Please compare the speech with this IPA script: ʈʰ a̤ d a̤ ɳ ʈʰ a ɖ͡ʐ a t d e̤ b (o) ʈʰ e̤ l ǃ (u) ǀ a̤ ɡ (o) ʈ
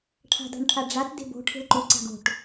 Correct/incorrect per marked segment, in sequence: incorrect: o̤, correct, incorrect: o̤

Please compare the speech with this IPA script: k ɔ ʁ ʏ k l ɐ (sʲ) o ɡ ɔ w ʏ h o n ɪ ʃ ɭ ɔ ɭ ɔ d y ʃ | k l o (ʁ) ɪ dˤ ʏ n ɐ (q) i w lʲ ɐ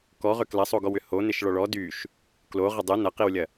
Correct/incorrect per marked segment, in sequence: incorrect: sˤ, correct, correct

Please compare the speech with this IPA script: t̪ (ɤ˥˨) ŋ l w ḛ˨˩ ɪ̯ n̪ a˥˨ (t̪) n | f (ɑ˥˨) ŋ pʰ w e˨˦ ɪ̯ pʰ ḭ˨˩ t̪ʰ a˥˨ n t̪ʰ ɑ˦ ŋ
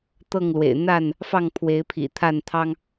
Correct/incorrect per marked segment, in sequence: correct, incorrect: none, correct

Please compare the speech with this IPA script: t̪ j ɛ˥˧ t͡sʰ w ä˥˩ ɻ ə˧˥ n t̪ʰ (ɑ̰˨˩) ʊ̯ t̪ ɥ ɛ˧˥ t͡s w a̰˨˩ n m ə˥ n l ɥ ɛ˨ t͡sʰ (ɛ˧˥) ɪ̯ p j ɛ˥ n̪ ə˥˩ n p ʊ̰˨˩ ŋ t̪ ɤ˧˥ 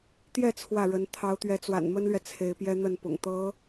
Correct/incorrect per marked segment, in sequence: incorrect: ɑ˧˥, incorrect: e˧˥

